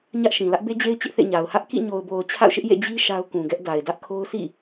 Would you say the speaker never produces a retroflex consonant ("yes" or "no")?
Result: yes